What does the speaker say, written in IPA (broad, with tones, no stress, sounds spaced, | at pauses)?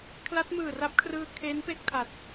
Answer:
kʰ l a˦˥ t̚ m ɯː˨˩ r a˦˥ p̚ kʰ r ɯː˧ kʰ e˦˥ n p e˥˩ k̚ tʰ a˨˩ t̚